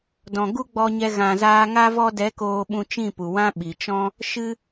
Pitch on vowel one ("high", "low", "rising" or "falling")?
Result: low